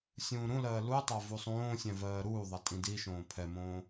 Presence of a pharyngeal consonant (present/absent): absent